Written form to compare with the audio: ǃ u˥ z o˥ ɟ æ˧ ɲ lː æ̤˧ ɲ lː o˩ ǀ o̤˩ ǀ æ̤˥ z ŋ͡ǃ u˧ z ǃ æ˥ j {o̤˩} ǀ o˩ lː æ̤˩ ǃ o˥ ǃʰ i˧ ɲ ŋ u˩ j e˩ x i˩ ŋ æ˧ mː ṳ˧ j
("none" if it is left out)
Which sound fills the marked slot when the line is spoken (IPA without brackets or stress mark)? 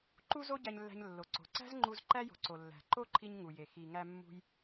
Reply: o̤˩